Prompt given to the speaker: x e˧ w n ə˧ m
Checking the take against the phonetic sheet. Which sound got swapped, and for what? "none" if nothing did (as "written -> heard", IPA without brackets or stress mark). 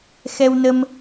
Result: e˧ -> ɛ˧